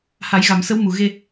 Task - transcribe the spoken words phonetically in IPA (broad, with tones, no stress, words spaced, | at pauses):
ha˨˩˦jɣa˨˩˨msə˧˥wmu˨˩ ɣe˧